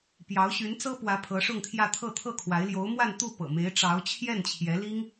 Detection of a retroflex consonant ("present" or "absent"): present